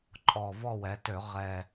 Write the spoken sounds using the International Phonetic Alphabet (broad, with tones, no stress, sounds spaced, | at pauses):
ǃʼ ɔ˨˩ v ɔ˦˨ w ɛ˩˧ t ø˧˩˧ ʁ ɛ˨˩